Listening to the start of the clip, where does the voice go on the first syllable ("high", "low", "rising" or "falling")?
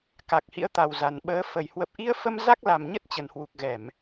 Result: low